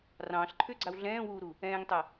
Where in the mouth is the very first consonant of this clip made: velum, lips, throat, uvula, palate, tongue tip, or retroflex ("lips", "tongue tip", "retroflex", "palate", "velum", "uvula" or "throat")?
tongue tip